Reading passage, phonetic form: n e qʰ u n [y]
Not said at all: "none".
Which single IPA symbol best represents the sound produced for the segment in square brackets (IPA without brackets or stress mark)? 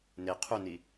i